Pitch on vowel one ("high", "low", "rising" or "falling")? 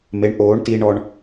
rising